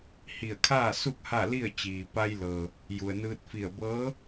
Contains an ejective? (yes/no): no